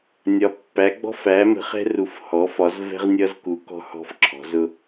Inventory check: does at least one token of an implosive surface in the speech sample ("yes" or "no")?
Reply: no